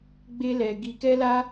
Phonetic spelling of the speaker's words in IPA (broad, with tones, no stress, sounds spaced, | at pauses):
ɡ͡b e˦ l ɛ˧ ɡ i˧ k ɛ˦ l a˦